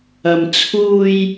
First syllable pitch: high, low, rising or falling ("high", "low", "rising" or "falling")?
low